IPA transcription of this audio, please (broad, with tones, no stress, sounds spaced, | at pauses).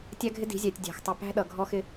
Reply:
tʲ æ˦ ɡʱ ɪ˦ d i̤˨˦ zʲ æ˨ tʲ dʲ æ̤˨ x tˤ ʊ˨ p æ̤˦ ɗ ʌ˨ ɡʱ ɔ˦ x ɪ˦